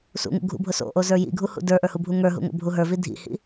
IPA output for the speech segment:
sṵŋṵ ɡʱṵbʱʊ so̰ʔozə˞ jḭɡʱuhṵ də˞ʔə˞hubʱu ŋə˞ɦṵŋo̰bʱu ɦə˞vi dʱḭhḭ

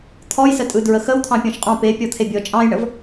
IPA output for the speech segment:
t̪ʰɔjsətʼɯ dɹəxəw t̪ʰɑ̃pʲɔ̃ʃqʼɑ̃ pe pʲɔt̪ʰebʲɔ t͡ʃʼɑ̃jɳəv

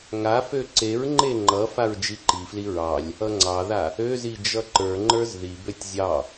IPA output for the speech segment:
ŋafø ǀeɹŋ͡ǃe ŋ͡ǃʌ faɹd͡ʒiǃifli ɹɑlʲ | ʌŋ͡ǀɑða | øzi d͡ʒʌǃə˞ŋ͡ǃə˞z ðibøtʲ zʲɑ

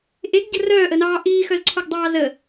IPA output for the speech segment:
ʔeɡɟə̤ rœːʔənɑː ʔiːxœzǀʰoɡdˤɑː zə

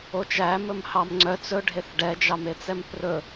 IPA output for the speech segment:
ot͡ʃæ mɵmhɑmŋ͡ǀœt͡s ɵ ɖʱeθɖɛ d͡ʒɑmet͡sɛmprɵ

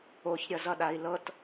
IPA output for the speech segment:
oç ɾʲʌzʌɗai̯lɤt

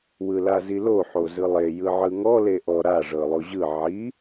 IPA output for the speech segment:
wɯlazilo ħozɯlˠe jɯʕɯŋɔ leʔɔ ɾa ʐɤlˠoʑɯ ʕi

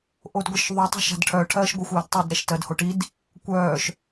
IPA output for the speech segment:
ʔodɡʷɨʃðˤu tˤṳʃa̤dʈʰœ ʈʰɜːʃɡʷɯxʷœːdtˤɛd ɾɛʃtɜdhoʈid | kʷœːʃ

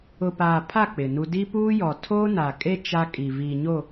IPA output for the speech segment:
ʊ˨paː˨pʰa˦˨ k͡pɪ˨nu˦ di˦puː˦jɔ˨ tʰoː˦na˨kʼe˦ t͡ʃa˦kʼi˨ vi˨ɲo˦˨

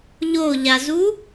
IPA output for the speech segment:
ʎoʎazu

